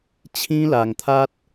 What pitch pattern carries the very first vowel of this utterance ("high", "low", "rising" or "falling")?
high